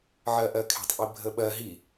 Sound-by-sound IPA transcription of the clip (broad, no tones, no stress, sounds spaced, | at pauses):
ʕ ɜ ʔ ɜ kʰ e̤ tˤ ʔ i bʱ ə ɓ ɜ ɦ i